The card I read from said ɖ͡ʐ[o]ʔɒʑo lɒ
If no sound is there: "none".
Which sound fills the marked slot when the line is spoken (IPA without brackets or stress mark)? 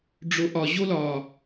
o